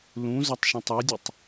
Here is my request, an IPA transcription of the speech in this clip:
l ũ z ɔ tˤ ʃ ũ tˤ ɛ dʲ u tˤ

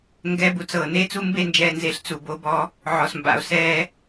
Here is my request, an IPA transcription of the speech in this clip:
ŋ ɡ ɛ˦ b u˨ t͡s ɤː˨ n e˦ t͡s u˦ m b e˦˨ n d͡ʒ ɛː˨ n z e˨ ɬ t͡s u˨ b o˦ b ɔ˦ | ʕ ɔ˨ s m b a̰˨ o̯ s ɛː˦

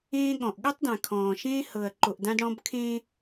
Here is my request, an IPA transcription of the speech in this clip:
ẽː˦ ɠ ɔ̃˨ ʔ ɠ u˦ tˤ d ã˨ kʰ ɔ̃ː˨ ʃ ẽː˦ h ɤ˨ ɐ̯ ǃ o˨ ʔ d ã˦ d ɽ ɔ̃˦ b kʰ ẽː˦

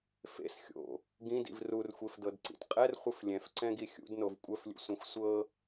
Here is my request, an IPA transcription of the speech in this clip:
f ḛ s xʲ o̰ | ɡ ĩ d ḭ v r u r xʷ e f d ɤ d ǀ ḭ t qʼ ɛ r χʷ ɨ f lʲ ɛ̃ f ǀ ɛ̃ ɡ i xʲ ṵ d n o v kʷʼ œ f lʲ ṵ sʷ ɛ̃ xʷ sʷ ɤ

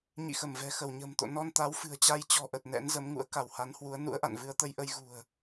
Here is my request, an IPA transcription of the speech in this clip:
ɲ ḭ˧˨ x ə˧˩ m v ɛ̤˨˩ x ə˧˩ w ɲ ə̤ː˨˩ m t̪ o̰˧˨ n ɔ˧ n t̪ a˨˦ w f ɨ̤˨˩ ə̯ t͡ɕ a˧ j t͡ɕ ɔ̤˨˩ ʔ ə˨˩ t̚ n ɛ̰˧˥ n z ə˨˦ m ŋ ṵ˧˥ ə̯ k a˧˩ w h a˨˦ n h w u˨˦ ə̯ n ṵ˧˥ ə̯ ʔ a̰˧˨ n v ɨ˧ ə̯ t̪ ə˧ j ʔ ə˧ j ɣ ṳ˨˩ ə̯

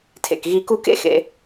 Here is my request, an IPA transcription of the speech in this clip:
tʰ ḛ˨ k ɣ i˧ k u˦ k ḛ˦ x ḛ˧

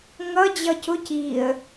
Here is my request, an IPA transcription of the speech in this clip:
ŋ ʌ d͡ʑ ʌ c ʊ c i ə̯

